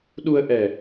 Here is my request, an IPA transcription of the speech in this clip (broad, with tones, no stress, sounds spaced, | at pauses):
ɗ u˧ ə̯ ʔ ɛ˨˩